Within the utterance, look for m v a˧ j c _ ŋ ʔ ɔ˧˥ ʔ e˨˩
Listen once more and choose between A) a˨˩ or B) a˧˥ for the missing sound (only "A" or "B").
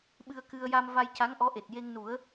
B